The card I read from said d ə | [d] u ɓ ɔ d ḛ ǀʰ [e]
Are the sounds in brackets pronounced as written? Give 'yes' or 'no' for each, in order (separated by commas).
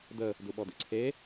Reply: yes, yes